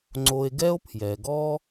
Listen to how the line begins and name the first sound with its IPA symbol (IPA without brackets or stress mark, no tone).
ŋ͡ǀ